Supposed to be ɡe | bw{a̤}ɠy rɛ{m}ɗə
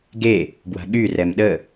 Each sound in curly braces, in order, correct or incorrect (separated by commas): correct, correct